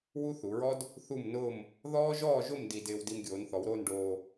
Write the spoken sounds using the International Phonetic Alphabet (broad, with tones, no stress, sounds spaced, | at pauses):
w u˥ θ u˩˧ ɹ ɔ˥ d | θ u˥˧ m n ʊː˥˧ m | ð ɔː˥ ʒ ɔː˥˧ ʒ ʊ˥˧ m d i˧ d ɪː˧ w d i˧ m ɡʲ oː˩˧ n θ ɔ˩˧ w ɾ oː˥˧ n ɖ oː˧